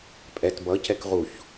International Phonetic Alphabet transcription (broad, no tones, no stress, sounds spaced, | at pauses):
pʼ ɛ t b ʌ c ɛ k ʁ u ç